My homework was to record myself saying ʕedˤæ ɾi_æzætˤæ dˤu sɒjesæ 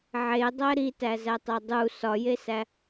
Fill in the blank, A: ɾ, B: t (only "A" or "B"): B